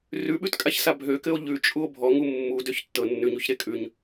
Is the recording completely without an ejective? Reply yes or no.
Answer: no